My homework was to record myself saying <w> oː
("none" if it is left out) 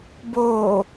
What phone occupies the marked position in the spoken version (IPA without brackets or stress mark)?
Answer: b